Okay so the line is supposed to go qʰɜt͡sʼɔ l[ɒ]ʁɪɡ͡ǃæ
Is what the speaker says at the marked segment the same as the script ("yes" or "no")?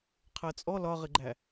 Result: yes